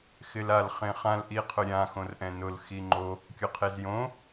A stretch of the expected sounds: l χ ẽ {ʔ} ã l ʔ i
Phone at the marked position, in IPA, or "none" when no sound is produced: χ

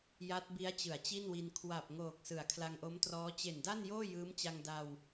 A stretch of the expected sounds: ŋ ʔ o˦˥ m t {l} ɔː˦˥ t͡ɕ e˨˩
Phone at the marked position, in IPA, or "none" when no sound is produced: r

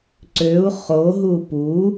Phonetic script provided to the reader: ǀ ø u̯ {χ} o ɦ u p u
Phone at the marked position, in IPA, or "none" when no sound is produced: χ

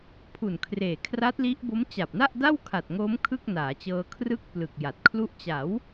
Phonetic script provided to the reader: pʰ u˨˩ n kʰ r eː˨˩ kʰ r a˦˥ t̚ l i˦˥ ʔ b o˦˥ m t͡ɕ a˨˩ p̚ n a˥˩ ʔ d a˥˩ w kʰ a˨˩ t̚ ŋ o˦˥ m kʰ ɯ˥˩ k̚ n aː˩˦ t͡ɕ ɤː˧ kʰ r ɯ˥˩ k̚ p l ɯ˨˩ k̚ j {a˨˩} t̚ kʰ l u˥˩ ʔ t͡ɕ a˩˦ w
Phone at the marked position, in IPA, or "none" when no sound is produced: a˨˩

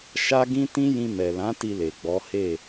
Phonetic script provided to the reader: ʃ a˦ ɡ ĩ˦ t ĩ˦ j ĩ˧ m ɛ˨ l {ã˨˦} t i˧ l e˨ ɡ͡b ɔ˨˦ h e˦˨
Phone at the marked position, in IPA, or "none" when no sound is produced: ã˨˦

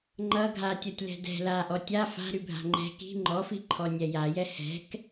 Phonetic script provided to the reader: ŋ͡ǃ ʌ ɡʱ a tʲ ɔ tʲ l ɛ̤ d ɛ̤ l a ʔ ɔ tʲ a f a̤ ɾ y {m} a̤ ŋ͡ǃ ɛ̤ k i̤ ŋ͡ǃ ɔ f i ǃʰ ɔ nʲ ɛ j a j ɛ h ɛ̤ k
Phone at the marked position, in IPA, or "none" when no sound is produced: bʱ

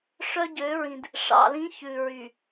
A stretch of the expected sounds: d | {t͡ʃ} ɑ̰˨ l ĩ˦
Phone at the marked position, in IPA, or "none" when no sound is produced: ʂ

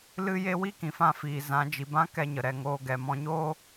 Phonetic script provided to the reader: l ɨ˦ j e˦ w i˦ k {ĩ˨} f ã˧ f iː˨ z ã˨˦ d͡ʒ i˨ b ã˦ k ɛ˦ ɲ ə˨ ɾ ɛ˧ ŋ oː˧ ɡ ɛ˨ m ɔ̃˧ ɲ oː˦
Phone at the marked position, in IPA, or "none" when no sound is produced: ĩ˨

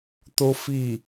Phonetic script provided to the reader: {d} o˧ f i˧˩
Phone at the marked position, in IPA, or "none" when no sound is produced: t̪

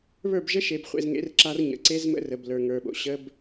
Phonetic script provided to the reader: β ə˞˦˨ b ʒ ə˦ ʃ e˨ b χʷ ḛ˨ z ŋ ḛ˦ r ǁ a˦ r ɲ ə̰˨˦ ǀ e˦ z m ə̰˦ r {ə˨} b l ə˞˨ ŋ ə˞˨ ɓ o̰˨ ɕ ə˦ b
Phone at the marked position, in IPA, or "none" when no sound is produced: ə˨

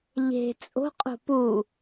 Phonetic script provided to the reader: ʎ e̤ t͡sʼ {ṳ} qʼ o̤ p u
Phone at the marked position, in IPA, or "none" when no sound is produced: o̤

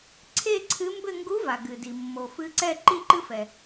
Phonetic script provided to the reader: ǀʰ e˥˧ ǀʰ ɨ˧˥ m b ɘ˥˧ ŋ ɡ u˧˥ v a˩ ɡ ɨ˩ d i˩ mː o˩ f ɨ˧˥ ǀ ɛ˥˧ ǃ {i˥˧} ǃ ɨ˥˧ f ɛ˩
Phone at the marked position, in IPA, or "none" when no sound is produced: i˥˧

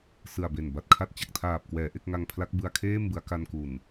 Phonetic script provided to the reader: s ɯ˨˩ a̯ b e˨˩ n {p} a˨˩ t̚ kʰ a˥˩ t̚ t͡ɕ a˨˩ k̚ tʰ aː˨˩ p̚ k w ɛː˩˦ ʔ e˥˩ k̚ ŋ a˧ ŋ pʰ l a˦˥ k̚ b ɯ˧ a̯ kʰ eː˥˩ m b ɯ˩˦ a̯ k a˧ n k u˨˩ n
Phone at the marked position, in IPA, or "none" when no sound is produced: b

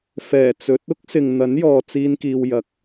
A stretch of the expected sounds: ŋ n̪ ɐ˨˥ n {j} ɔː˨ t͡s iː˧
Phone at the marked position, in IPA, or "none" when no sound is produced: j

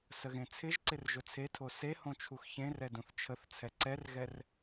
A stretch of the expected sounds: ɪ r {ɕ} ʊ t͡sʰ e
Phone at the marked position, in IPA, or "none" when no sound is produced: ʒ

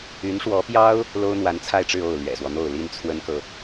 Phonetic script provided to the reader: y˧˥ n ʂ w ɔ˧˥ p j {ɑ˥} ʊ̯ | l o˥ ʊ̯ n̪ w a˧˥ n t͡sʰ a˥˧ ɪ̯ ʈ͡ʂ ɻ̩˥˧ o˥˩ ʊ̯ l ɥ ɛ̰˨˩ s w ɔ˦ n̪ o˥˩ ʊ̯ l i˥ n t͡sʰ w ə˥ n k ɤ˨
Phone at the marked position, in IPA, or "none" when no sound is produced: ɑ˥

